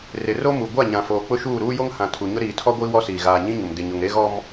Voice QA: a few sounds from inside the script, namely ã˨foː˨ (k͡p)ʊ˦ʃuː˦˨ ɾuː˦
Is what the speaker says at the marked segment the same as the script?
yes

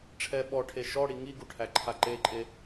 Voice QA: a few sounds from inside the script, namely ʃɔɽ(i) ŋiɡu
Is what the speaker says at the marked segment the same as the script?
yes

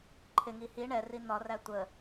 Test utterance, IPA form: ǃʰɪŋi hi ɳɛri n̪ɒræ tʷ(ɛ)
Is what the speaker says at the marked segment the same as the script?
no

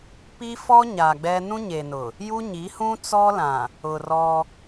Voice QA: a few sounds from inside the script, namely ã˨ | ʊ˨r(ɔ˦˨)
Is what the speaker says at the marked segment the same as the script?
no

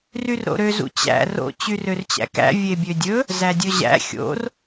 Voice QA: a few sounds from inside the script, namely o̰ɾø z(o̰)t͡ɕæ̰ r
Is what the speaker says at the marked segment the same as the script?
no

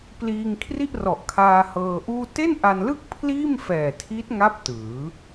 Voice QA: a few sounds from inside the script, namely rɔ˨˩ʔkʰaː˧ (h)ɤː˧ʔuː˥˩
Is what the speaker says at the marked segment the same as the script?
yes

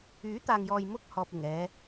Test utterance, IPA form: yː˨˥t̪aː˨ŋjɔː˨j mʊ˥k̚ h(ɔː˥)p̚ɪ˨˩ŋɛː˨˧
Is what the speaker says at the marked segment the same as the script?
no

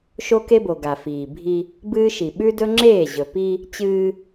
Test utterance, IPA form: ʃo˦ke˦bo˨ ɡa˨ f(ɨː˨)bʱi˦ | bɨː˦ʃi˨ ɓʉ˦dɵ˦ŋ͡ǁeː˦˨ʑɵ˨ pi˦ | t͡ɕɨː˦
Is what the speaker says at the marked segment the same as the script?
no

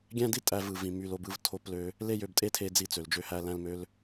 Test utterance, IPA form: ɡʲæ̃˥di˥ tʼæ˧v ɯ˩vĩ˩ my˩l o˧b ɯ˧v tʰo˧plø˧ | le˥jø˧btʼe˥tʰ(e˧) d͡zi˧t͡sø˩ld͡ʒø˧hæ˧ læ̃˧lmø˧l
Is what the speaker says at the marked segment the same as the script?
yes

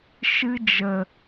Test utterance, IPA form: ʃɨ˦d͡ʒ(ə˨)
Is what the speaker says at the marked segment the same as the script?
yes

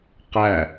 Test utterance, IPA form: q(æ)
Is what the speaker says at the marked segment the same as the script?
yes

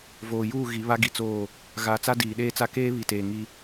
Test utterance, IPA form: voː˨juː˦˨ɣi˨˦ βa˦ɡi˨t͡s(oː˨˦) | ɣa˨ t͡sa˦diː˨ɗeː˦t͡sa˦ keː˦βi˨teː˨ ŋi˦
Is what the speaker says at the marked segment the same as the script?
no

